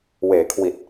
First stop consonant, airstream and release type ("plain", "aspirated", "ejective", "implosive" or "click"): aspirated